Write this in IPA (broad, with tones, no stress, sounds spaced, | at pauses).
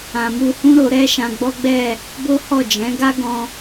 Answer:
ã˨ m u˧ h ũ˦ ɾ o˧ ɾ ɛ˦ ʃ ã˧ ɡ͡b ɔ˦ ɡ͡b ɛ˦˨ | b o˦ h ɔ˦˨ d͡ʒ ɛ̃˨˦ ɡ a˦ ɡ ɔ̃˧